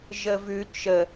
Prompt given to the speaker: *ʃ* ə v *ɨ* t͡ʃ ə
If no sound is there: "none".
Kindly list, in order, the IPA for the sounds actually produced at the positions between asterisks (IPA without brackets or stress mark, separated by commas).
ʒ, ʉ